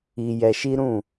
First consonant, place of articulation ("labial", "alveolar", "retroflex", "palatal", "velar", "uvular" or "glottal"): palatal